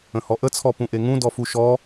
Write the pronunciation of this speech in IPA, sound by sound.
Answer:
ə̃ h ɔ ʔ ə t͡sʰ ɔ p ũ ʔ e ŋ ũ d ɔ f u ʃ ɔ

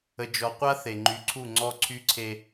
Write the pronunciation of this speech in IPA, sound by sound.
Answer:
ə˨ d͡ʒ ɔ˨ qʷ a˦ θ e˨ ŋ͡ǃ y˨ ǀʰ u˦˨ ŋ͡ǀ ɔ˦ ǀʰ y˦ ǀʰ e˦

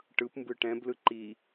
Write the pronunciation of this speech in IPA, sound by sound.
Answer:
ʈ ɯ p m b ɯ ʈ ɛ̃ b l ɯ ǃ i

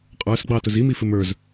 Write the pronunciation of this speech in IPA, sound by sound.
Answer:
qʼ ə˞ s ɡ͡b ɑ t ʊ z i m i f ɪ m ə˞ z

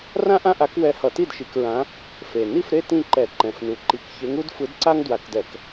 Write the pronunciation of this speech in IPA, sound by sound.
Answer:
r ã˥ ʔ ã˥ ʔ a˧˥ k w ɛ˧˥ h ʌ˧˩˧ t i˥˨ d ʃ i˧˩˧ k ɹ ã˧˥ | f e˨˩ n i˥˨ f ɾ e˥˨ t ĩ˥˨ ǃ ɛ˧˩˧ ǃ ɛ̃˨˩ f n u˨˩ ǃ i˧˩˧ k ç e˧˥ ŋ u˥ d f ɯ˧˥ d ǀ a˥ ŋ d w a˧˩˧ k d ɛ˧˩˧ k

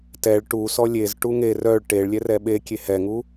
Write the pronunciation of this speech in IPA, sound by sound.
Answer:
t ɛ ɭ ʈ u s ɔ lʲ e z ʈ u ŋ e r œ ɭ ʈ e ɭ lʲ ɛ r ɛ ɓ e kʲ e h ɛ ŋ u

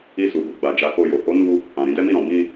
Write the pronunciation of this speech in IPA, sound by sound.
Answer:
i˧ s u˨ b u˨ ɡ͡b a˨ d͡ʒ a˨˦ k o˧ j o˨ h o˨˦ n u˧ | ã˨ ɾ ĩ˧ d ɛ˦ m i˦˨ ɾ ɔ̃˨ b ĩ˧

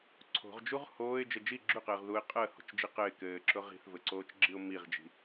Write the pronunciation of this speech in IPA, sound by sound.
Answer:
ǀʰ o̤ ʁ d͡ʒ u ʁ h oː ɪ̯ d͡ʒ ɘ d͡ʒ i ɡ͡ǁ ʉ q ɘː ʁ ð u ɪ̯ qʼ əː h o̤ t͡ʃ d͡ʒ i q ɘ ɪ̯ k ɘː ǁ ʊ ʁ i̤ θ v ɘ ǀ oː t͡ʃ ɡ͡ǁ i ʊ̯ m i ʁ d͡ʒ i̤

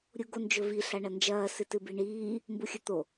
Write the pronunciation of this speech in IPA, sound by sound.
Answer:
ɾʲ u ɡ o n d͡ʒ ɵ v i ɬ a ɳ ɐ n d͡ʒ ɐː s ɨ t ɨ b i ɳ iː | m b u xʲ ɵ t̪ o

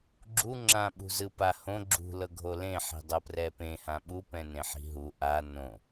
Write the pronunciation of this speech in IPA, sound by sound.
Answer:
ɡ͡ǁ u ŋ͡ǁ ã ɓ ṳ z ɯ p a h õ ɡ͡ǁ ṳ l ɤ ɡʱ o l ẽ ħ i̤ dˤ ɤ p r ɛ p ẽ h ã ɓ u p ɛ̃ n ẽ ħ i̤ ɦ u ʔ a n õ

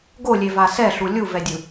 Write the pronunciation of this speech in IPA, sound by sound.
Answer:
ɡ o lʲ e v a s ɛ ɬ u lʲ u v ɛ dʲ ɯ

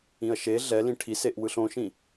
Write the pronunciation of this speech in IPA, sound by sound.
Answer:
ĩ ɐ̯ ʃ e ɮ ɛ l ĩ ʈʰ i s e ʔ w ɯ ɬ õ ʃ ĩ

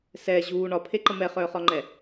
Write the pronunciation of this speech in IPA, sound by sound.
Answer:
s ɛː ʑ uː ɳ ɒ pʰ e ǃ ə m ɛ χ œː χ ɒ ŋ͡ǃ ɛ

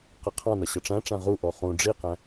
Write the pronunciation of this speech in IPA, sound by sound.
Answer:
q ʌ qʰ ɑ̃ n ʌ ɕ ʌ ʈ͡ʂ æ̃ ʈ͡ʂ æ̃ ʁ u ʔ ɔ χ ũ ɖ͡ʐ i q æ̃

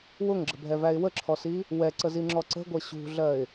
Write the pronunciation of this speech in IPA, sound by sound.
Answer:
w ʊ ŋ ɡ͡ǁ ə̤ bʱ ɛ v æ ɪ̯ w ə ǁʰ ɔ s i | w ɛ ǀ ə z i ŋ͡ǁ ɔ ǀ ə̤ ɡʷ ɜ ɕ ṳ ɮ ɜ ɪ̯

